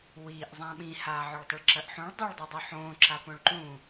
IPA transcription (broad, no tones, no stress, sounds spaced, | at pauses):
w iː ʔ zˤ ã ɓ ĩ h aː ʕ ɵ ɭ tˤ ɨ ɭ ǁ ɐ ʔ ħ ũ ɭ dˤ ɵ ɭ dˤ i dˤ ɵ ħ õː ǁ a p õ ɭ ǃ ũ